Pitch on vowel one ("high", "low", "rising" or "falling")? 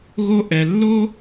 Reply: high